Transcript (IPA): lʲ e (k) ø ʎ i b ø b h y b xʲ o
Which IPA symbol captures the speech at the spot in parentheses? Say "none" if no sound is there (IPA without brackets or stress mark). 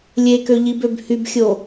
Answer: k